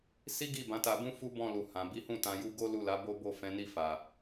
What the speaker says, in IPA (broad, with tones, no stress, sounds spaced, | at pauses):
s i˦ ɡ i˦˨ b ã˨˦ t a˧ b ũ˦ f u˦ b ɔ̃˦˨ l u˨ h ã˨ b i˨˦ h ũ˦˨ t ã˧ j u˦ ɡ o˦ l u˦˨ l a˨˦ b o˦ b o˦˨ f ɛ̃˨˦ n i˦˨ f a˨